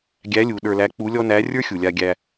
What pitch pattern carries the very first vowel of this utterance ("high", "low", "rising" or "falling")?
rising